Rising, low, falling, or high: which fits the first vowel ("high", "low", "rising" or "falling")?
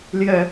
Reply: low